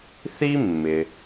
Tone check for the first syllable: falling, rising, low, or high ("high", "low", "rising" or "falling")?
high